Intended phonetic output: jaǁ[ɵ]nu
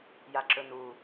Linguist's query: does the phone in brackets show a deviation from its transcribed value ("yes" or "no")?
no